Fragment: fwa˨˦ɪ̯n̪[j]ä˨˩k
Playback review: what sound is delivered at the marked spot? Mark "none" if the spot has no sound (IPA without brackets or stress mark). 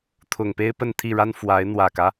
w